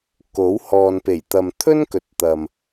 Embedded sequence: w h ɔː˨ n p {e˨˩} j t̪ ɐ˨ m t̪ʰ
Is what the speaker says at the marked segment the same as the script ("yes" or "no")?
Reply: yes